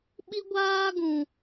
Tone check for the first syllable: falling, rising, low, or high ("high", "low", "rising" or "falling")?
high